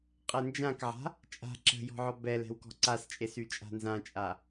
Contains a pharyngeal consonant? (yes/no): yes